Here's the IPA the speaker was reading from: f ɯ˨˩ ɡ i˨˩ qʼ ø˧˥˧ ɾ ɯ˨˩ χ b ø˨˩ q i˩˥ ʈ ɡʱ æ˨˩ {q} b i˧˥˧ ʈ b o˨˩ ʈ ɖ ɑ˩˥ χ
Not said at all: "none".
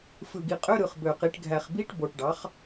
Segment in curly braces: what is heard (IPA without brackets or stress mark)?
χ